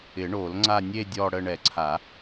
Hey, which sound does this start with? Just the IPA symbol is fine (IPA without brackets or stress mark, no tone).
ɪ